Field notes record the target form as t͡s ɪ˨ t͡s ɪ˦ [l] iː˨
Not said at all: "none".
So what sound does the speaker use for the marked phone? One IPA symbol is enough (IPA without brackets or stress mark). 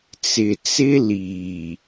l